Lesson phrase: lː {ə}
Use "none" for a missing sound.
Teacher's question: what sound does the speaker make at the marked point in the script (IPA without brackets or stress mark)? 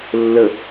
ə